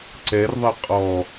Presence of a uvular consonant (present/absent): present